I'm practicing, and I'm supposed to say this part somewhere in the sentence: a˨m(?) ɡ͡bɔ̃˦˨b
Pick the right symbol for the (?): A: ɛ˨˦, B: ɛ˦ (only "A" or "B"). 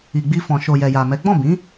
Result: A